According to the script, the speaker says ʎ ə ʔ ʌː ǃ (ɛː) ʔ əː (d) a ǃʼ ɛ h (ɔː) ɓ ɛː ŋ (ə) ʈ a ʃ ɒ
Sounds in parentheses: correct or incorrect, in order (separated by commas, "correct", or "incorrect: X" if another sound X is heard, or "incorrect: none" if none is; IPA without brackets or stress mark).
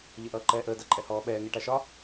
correct, correct, correct, incorrect: ɛ